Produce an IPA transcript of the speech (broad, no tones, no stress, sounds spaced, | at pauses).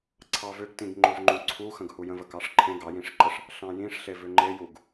ǀʰ ɑ v ʏ ɡ t ĩ ɡ ŋ͡ǃ o v ŋ͡ǃ ũ ǀʰ u x ə̃ ɡ h u j ə̃ v ə k ɑ ʂ ǃʰ ẽ ɡ ɑ j ĩ ʂ ǃ ə ʂ | ɬ ɑ̃ j ĩ ʂ ɬ e v ʏ ŋ͡ǃ e j u ɡ